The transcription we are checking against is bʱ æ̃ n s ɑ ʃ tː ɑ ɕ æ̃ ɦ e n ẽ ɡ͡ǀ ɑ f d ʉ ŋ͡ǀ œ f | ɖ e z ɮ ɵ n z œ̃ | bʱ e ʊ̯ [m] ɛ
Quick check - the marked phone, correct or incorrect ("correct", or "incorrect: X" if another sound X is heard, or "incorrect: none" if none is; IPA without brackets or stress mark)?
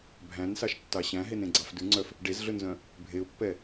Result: incorrect: pː